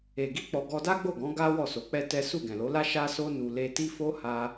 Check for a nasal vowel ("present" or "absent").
present